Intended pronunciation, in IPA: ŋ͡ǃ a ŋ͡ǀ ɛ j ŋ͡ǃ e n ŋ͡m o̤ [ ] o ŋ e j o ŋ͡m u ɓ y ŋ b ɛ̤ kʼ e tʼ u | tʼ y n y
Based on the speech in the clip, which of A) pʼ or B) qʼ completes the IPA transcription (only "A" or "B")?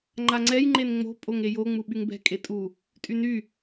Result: A